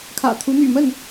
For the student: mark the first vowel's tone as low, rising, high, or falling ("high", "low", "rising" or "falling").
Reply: low